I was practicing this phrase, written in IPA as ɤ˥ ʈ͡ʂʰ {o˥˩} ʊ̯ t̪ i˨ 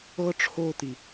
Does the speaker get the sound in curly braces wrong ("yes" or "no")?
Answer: yes